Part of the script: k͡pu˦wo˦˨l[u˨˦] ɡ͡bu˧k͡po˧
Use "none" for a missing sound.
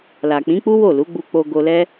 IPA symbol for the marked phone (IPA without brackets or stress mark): u˨˦